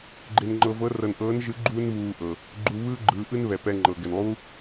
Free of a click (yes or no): no